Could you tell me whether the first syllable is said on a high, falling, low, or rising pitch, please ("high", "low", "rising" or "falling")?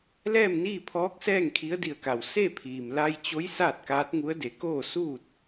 falling